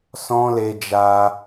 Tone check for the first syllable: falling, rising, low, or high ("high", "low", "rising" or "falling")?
high